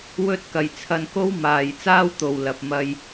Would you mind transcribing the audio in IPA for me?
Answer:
w ɵ˧ t̚ k ɐ˨ j t͡sʰ ɐ˧ n k o˥ w m aː˨ j t͡s aː˥ w t̪ o˨ w l ɐ˨ p̚ m ɐ˧ j

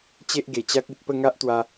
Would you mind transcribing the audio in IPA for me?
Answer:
t͡ɕ e˦ ʔ ɡ e˨˩ t͡ɕ a˦ k̚ i˨ t̚ p ə˥˧ ŋ a˦ ʔ t̪ w a˧

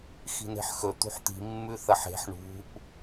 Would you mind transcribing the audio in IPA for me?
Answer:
x i̤ n e̤ ħ x ɵ t̪ ṳ ħ t̪ i̤ mː ʉ θ ɐ ħ e̤ ħ ɳ ṳ ʔ

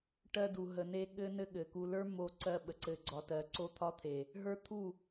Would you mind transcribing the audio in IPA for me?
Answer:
ʈ ɜ˧ d u˨ ɦ ə˨ n e˧ ɠ ɘ˦ n ɘ˦ ɠ ɘ˨ k u˧ l ə˞˦ m o˧ ǀ ɜ˧ ɓ ə˧ ǀ ɘ˧ ɡ͡ǀ ɒ˧ t ɜ˧ ǀ o˦ t̪ʰ ɒ˦ t̪ʰ e˨ | ɦ ə˞˦ t̪ʰ u˦˨

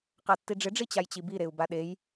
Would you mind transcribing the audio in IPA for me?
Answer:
q a tː i ɖ͡ʐ ɪ ɖ͡ʐ i t͡ɕ a j t͡ɕ i b i ɾ e u̯ b a ɗ e j

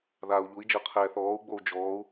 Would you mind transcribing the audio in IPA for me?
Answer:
ð aː u̯ ʎ u i̯ d͡ʒ ɤ qʰ ɛː θ ɔː u̯ ɡ͡b o u̯ d͡ʒ ɔː u̯

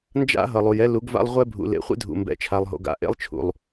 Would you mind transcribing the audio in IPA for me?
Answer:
n d͡ʒ a̰˦ ɦ ʌ˨ lˠ u˨ j ɛ˦ l u˨˦ ɡ v a̰˦ lˠ ʁʷ ɛ˦ bʱ ṵ˨ l ḛ˨ χʷ ḛ˦ dʱ ṵ˨ m b ɛ̰˨ t͡ʃʰ a˨ lˠ ɦ o̰˨ ɡ a̰˨ ʔ ḛ˦ lˠ t͡ʃʰ ṵ˨ lˠ

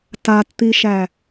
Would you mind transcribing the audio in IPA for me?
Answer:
t a t t̪ i ʃ æ

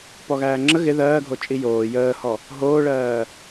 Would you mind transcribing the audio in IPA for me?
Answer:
p ɔ ɣ æː ŋ͡ǁ ə ɣ ɪ ð ɜː ɡʱ o t͡ʃʼ i j oː j əː h ɔ | ɦ oː ɭ ɜː

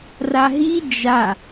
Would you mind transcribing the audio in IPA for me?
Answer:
r a ɦ i d͡ʒ a

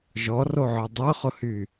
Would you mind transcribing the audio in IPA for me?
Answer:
ʒ ɔ r o ʕ œ dˤ œ χ ʊ h y

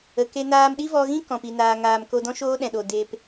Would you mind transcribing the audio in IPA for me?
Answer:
ə˨ k e˦ n aː˧ m ɗ i˦ v ɔ˧ ɣ ĩ˦ k ɔ̃˨ p i˨ n aː˨ ŋ aː˨ m k o˧ d ɔ̃˦ ʃ oː˦ ɗ ɛ̃˨ ɗ o˨ d eː˧ p

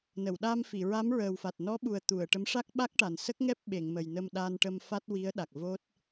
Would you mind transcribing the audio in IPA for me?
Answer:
n ə˨˩˨ w ɗ a˧ m f i˨˩˨ ɹ a˧˥ m ɹ əː˨˩ w f a˨˩ t̚ n ɔ˧˥ ɓ u˨˩ ə̯ t̪ u˨˩˨ ə̯ ʈ ə˧˥ m ʂ a˦˥ k̚ ɓ a˦˥ k̚ ʈ a˨˩ n s ə˦˥ k̚ ŋ ɛ˦˥ p̚ ɓ e˨˩˨ ŋ m ə˨˩ j n ə˧ m ɗ a˧ n ʈ ə˧ m f a˦˥ t̚ w i˧˥ ə̯ ɗ a˨˩ k̚ v o˦˥ t̚

